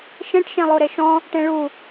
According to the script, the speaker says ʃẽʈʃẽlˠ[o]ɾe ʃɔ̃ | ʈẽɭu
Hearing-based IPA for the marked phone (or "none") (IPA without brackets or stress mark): o